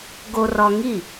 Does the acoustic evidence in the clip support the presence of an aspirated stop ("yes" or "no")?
no